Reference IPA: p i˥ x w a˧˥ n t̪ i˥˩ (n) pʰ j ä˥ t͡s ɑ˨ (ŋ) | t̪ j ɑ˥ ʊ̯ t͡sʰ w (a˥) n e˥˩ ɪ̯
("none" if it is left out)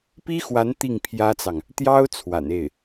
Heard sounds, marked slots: ŋ, ŋ, a̰˨˩

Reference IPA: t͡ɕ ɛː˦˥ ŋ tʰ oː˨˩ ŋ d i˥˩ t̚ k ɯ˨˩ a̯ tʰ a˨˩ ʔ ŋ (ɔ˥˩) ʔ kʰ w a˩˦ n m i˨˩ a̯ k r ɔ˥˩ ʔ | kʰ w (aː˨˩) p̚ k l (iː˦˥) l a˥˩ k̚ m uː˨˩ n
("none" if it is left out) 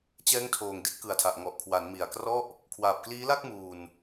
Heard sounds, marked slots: ɔ˨˩, aː˨˩, iː˦˥

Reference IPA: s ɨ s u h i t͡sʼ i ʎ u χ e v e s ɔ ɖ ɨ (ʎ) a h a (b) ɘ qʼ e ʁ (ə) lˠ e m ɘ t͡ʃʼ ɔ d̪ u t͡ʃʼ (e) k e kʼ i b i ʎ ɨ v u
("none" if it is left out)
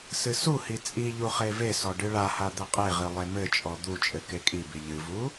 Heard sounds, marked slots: ɭ, d̪, ɨ, ɘ

